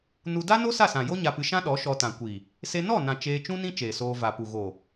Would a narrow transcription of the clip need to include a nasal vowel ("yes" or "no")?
yes